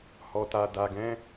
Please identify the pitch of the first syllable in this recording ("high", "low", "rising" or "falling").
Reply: low